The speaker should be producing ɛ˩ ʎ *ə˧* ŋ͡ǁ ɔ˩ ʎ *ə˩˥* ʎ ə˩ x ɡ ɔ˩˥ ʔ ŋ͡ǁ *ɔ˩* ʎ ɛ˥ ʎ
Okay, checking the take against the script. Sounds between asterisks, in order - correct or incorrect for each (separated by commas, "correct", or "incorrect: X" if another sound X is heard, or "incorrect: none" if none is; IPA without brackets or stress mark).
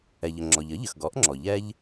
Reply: incorrect: ə˩, correct, correct